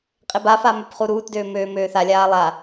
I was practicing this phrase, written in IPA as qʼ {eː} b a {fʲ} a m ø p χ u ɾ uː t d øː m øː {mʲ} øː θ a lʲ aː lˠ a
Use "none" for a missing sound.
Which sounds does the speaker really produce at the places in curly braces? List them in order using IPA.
e, f, m

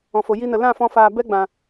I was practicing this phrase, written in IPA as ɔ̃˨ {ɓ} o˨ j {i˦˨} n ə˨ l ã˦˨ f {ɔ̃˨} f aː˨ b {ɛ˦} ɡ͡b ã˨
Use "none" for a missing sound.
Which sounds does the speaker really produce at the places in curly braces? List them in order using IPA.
f, i˧, ɔ̃˧, ɛ˦

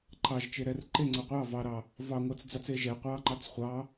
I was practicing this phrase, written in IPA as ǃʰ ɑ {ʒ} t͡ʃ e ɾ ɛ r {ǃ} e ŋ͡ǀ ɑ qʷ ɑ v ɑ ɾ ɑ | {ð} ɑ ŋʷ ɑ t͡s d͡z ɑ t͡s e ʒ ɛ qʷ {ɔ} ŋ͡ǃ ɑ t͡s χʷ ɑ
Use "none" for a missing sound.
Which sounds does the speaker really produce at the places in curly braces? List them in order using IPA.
ʒ, ǃ, v, ɑ

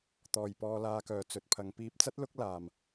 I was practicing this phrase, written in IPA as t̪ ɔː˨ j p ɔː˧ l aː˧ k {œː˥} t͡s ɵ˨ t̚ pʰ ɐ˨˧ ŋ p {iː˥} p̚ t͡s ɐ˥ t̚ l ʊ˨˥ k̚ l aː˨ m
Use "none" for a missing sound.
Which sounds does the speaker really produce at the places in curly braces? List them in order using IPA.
œː˨, iː˧

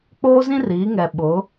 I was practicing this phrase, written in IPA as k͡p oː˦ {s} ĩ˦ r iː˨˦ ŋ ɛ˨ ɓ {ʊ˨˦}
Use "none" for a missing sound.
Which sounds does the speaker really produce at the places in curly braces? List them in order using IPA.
z, ʊ˨˦

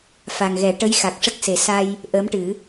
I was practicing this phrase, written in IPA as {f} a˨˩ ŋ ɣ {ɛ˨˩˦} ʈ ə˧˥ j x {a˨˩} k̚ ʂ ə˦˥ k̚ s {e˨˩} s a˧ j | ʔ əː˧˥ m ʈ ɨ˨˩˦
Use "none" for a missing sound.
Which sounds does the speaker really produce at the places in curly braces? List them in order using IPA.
f, ɛ˨˩˦, a˨˩, e˨˩˦

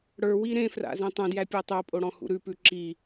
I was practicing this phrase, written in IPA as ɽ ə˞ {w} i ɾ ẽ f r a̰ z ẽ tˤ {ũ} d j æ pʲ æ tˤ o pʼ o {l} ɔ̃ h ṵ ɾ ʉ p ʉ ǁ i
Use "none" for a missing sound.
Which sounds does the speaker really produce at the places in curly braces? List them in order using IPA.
w, ũ, ɽ

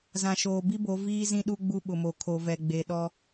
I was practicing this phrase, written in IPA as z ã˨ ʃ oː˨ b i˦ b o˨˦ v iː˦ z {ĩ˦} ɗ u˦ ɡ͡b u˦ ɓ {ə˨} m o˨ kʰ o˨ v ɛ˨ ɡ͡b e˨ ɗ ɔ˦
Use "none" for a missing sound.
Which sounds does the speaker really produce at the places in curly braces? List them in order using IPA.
ĩ˦, ʊ˨

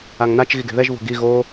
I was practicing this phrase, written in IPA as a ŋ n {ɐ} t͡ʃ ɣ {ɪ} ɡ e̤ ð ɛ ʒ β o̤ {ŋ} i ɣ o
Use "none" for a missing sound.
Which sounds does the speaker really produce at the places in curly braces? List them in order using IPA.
a, i, ɡ

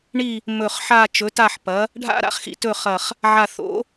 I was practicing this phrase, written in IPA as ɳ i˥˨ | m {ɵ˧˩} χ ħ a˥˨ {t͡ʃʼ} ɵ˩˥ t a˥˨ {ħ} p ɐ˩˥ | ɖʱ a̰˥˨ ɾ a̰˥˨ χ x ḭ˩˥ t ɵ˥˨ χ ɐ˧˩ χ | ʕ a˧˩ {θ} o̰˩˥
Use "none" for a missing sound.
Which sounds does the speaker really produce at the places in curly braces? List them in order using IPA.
ɵ˧˩, t͡ʃ, ħ, θ

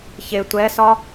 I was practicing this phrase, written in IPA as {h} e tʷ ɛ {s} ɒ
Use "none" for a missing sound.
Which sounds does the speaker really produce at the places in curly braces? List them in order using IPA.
ç, s

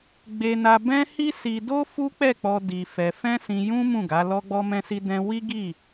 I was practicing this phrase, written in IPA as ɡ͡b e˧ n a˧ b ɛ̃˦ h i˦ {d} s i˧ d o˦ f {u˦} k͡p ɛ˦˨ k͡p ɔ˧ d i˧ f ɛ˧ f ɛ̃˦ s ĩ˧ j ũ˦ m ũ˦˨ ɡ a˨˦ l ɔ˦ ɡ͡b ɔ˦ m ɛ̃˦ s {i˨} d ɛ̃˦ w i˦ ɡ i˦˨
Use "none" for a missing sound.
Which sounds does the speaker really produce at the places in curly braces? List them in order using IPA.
none, u˦, i˦

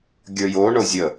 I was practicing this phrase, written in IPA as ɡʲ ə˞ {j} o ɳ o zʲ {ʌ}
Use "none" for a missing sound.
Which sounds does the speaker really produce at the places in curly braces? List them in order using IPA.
j, ə

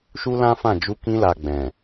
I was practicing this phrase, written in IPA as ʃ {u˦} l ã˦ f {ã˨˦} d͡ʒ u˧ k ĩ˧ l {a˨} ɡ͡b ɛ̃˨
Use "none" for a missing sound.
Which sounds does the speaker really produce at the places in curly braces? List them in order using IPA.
u˦, ã˦˨, a˨

